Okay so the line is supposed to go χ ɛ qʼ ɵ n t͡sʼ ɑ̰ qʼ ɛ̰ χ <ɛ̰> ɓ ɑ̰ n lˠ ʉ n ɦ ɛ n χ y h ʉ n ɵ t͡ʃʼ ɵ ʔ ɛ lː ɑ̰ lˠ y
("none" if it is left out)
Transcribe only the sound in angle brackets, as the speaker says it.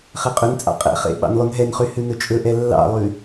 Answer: ḛ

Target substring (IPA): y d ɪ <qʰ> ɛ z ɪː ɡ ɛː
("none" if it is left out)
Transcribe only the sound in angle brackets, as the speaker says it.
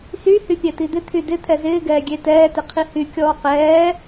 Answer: t̪ʰ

